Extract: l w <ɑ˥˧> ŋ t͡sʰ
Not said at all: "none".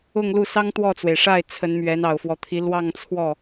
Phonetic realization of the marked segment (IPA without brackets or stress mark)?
ɑ˥˧